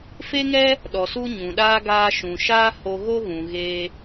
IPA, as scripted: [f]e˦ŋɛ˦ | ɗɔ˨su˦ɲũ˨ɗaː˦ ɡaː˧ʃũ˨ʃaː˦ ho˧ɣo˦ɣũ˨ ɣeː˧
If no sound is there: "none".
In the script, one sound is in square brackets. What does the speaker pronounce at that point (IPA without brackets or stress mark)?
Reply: f